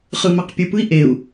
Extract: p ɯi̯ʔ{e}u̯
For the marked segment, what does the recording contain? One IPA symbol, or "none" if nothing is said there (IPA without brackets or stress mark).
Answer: e